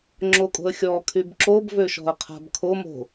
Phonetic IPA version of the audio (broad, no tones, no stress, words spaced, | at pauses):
ŋ͡ǁokʼo̤ə̯xʲɔkʰyb ǁobvøʃɔ̤ə̯ qʰa̤bkʰomo̤